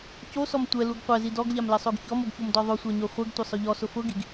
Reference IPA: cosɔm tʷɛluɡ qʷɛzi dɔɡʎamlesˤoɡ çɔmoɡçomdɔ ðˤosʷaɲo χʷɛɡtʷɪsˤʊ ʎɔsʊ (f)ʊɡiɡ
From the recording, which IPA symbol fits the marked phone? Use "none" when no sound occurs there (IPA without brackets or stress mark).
f